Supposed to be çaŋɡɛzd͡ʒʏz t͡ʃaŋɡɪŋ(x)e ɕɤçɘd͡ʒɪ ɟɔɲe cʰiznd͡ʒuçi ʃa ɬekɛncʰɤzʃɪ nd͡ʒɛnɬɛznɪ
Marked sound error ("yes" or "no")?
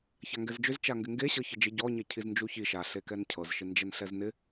yes